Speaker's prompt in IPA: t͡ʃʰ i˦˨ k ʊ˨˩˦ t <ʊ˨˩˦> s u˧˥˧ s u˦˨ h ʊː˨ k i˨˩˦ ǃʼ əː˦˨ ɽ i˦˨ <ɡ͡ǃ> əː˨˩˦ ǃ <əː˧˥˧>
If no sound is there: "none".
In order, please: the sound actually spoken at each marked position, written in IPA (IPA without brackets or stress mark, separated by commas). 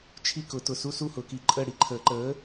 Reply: ʊ˨, ǃʰ, əː˨˥